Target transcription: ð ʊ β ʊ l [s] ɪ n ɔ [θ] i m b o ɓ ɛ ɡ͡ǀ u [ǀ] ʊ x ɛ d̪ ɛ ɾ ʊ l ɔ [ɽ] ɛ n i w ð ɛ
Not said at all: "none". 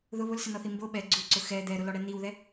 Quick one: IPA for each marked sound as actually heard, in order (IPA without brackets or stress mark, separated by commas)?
s, θ, ǀ, ɽ